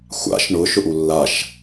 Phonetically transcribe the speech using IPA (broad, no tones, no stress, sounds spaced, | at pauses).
xʷ a̰ ʃ ɳ ʊ ʃ ʊ ʔ u lː a ʃ